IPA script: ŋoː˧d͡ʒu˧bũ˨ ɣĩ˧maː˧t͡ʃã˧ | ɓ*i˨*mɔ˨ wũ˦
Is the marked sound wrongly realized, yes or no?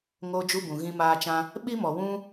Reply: yes